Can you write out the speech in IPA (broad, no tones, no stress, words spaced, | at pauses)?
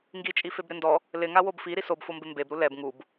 ŋɡit͡ʃʼi febɾɪndɔ | lɪŋawob fiɾi sobfombɪ mbebɾu lɛb ŋub